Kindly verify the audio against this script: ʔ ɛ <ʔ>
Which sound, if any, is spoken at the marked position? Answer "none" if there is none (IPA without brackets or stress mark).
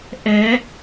none